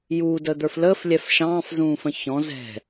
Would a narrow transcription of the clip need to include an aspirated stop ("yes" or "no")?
no